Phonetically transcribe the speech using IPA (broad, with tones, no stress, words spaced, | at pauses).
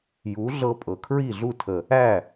ju˨˦ɮɤ˧pʼɤ˨ kʰɹi˦˨ɮu˦˨tʰə˨ | æ˦˨